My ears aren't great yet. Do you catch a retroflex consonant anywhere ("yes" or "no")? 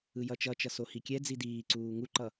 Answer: no